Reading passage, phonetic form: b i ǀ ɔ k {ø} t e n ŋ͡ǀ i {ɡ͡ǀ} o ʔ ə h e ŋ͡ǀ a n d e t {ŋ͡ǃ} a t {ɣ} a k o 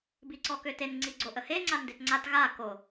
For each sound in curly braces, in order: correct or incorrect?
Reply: correct, correct, incorrect: ŋ͡ǀ, correct

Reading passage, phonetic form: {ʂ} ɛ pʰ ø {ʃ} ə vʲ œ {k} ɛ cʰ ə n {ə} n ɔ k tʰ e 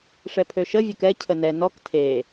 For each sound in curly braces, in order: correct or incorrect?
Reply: correct, correct, correct, incorrect: ɛ

